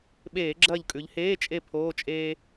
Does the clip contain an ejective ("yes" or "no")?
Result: yes